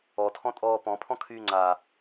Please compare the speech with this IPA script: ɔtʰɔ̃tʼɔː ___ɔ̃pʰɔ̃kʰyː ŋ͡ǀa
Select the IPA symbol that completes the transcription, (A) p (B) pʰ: A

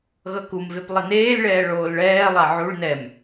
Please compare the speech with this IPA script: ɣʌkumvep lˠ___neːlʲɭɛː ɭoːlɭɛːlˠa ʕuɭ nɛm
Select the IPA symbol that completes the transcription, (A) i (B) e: A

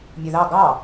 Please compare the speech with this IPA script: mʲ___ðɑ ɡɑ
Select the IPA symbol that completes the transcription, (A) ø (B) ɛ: A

